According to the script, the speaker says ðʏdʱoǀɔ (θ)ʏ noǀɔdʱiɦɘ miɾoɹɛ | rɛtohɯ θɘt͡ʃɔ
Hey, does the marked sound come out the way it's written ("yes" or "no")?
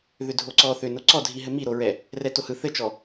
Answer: yes